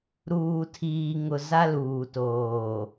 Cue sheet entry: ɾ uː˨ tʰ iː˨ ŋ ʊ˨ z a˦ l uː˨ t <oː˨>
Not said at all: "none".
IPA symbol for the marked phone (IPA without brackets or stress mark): oː˨